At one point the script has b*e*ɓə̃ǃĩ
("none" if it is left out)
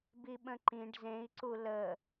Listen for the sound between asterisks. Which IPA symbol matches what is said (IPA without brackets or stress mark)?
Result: i